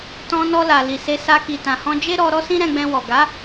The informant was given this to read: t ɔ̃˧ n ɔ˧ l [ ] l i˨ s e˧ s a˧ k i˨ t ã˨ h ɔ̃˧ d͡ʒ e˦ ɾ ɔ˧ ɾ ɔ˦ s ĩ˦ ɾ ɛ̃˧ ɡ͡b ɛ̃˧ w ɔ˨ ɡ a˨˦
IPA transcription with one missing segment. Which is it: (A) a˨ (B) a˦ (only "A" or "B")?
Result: A